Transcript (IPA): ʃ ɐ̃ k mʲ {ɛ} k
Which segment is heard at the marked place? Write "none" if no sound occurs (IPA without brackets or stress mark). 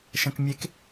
e